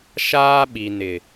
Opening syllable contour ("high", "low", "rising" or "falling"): high